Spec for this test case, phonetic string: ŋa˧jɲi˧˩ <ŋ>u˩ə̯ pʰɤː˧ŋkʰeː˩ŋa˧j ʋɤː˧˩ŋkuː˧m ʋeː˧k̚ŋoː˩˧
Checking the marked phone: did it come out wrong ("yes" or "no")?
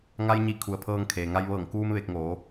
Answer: yes